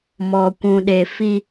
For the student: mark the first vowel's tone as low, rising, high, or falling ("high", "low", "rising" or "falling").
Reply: low